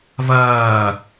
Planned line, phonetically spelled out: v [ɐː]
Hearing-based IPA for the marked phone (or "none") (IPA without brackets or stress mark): ɐː